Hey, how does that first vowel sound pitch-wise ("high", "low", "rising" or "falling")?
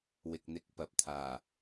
low